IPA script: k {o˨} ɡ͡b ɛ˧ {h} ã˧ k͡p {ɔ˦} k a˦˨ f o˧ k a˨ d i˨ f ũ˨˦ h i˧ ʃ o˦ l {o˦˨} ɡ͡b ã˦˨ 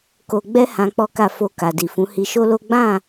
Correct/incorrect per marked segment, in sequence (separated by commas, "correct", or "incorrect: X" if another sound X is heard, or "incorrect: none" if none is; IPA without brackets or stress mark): correct, correct, correct, incorrect: o˦